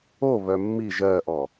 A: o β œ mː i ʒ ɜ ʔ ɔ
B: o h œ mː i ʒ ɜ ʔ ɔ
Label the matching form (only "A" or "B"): A